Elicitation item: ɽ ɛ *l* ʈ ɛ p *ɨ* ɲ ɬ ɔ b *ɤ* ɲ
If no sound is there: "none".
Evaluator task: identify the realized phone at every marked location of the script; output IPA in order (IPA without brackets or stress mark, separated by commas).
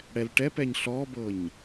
l, ɛ, ɤ